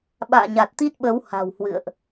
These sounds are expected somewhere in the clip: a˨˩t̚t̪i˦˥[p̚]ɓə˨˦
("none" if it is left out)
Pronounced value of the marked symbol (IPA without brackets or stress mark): t̚